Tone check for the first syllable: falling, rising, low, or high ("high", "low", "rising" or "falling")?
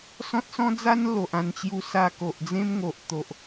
high